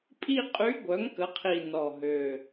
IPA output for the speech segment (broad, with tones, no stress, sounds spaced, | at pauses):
pʼ i˥˧ qʼ y˧˥ ɡʷ œ˩˥ ŋ k ə˩˥ qʰ i˨˩ n ɔ˨˩ ɦ ø˨˩